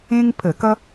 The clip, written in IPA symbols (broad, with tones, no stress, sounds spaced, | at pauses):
ẽ˥ ŋ pʰ ə˧˩˧ k ʌ˥